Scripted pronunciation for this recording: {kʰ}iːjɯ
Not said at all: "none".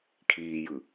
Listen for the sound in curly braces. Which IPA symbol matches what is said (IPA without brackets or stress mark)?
kʰ